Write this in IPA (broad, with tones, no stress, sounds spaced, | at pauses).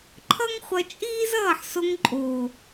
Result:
ǃʰ ʌ˦ ŋ χʷ ʌ˧ t͡ʃʼ iː˦ z ʌː˦˨ ħ s o˧ ŋ ǃʼ oː˨